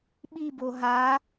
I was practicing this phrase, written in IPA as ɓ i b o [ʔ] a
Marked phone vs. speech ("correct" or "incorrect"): incorrect